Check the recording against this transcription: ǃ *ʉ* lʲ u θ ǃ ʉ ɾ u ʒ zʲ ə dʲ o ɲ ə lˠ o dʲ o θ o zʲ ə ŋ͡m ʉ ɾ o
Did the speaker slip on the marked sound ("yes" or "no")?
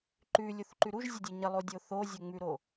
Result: no